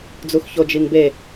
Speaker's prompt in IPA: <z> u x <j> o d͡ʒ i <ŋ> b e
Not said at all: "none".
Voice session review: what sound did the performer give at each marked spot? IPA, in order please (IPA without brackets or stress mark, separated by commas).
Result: d͡z, ç, ŋ